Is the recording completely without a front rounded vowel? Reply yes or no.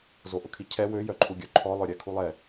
no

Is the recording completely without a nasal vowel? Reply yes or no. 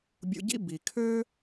yes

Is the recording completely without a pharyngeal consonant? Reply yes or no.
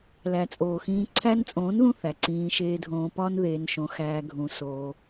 yes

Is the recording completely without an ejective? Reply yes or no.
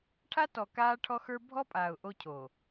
no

